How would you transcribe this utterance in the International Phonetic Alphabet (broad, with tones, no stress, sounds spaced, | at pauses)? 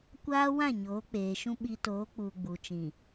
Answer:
kʷ aː˦ w ã˦˨ ɲ oː˨˦ k͡p eː˨ ʃ ũ˦ ɓ i˦ t oː˨˦ k͡p uː˨ ɡ͡b u˨ t͡ʃ ĩ˨